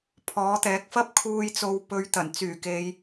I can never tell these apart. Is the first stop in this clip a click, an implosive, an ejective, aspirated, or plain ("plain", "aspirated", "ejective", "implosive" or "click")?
aspirated